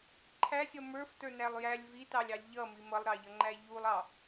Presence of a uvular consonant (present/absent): absent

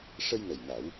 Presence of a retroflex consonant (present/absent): present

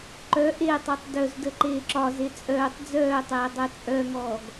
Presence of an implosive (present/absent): absent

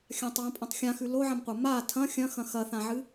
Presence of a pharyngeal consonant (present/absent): present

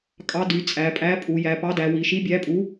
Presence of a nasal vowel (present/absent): absent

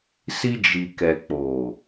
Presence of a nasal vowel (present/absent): absent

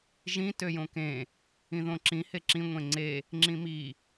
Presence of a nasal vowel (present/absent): present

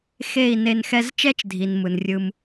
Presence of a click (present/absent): absent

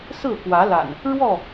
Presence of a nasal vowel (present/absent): absent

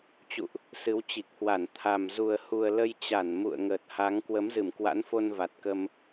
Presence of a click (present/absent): absent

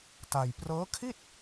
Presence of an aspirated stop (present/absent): present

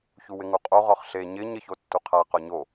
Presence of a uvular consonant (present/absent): present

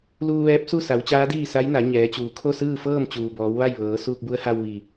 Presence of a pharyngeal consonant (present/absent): absent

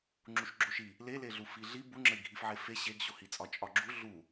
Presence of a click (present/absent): present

